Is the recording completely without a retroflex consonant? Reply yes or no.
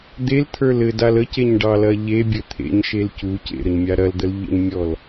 no